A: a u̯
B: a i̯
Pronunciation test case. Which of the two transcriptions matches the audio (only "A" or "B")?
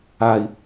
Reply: B